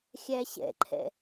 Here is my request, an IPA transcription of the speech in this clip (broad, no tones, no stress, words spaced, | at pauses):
xʲæɕɛ̰ǃʰɛ̰